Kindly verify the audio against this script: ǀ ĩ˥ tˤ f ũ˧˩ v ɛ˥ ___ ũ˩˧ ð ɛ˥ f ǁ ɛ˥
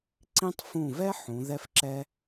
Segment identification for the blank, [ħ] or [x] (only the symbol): ħ